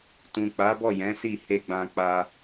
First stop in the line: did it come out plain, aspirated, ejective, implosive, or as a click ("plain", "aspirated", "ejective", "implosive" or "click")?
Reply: plain